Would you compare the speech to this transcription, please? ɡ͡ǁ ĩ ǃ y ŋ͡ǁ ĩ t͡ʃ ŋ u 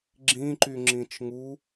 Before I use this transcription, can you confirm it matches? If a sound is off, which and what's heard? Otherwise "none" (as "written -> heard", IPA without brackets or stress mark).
none